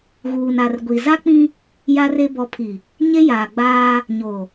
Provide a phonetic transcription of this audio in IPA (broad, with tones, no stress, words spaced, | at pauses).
ɣuː˨na˨rɡʷi˨ za˦k͡pĩ˦ | ja˦re˦ bɔ˨pʰi˨ | ɲe˦jaː˨ɡ͡baː˦ | ɲo˨